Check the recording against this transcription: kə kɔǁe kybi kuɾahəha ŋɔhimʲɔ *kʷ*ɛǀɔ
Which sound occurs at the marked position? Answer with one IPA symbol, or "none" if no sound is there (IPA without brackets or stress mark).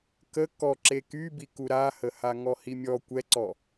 kʷ